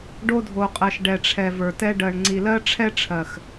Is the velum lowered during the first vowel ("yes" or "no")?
no